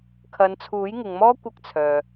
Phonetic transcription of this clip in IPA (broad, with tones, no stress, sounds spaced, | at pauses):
kʰ ɐ˨˧ n t͡sʰ uː˨˥ j ŋ ɪ˨ ŋ m ɔː˥ kʷ ɐ˥ k̚ t͡sʰ œː˨